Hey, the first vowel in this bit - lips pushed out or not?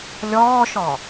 yes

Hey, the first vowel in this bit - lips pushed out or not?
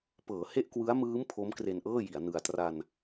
no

